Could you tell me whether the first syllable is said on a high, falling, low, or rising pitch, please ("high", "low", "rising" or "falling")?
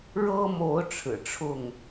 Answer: high